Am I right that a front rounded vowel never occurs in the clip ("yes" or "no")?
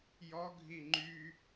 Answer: no